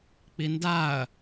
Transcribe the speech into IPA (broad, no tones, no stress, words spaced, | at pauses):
k͡pindaɐ̯